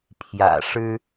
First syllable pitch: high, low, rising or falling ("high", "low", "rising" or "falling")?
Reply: low